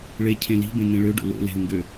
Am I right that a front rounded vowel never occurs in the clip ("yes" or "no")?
no